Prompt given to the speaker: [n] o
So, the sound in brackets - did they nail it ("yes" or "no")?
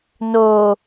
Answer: yes